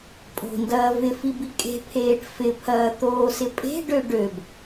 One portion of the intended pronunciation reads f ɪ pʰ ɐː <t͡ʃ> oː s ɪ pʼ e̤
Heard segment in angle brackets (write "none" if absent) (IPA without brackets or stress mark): t̪